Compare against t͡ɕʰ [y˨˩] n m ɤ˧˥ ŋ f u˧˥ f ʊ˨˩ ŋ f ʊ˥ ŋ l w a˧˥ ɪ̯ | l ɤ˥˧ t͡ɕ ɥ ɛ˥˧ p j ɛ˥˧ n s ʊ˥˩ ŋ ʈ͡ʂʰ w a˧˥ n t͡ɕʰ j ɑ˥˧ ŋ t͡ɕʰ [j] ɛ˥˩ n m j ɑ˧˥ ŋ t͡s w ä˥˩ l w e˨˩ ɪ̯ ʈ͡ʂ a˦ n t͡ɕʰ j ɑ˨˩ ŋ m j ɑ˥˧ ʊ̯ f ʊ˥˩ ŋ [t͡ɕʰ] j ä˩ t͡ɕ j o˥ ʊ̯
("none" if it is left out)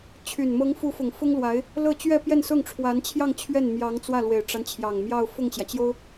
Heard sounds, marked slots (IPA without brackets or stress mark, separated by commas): y˨˩, ɥ, t͡ɕ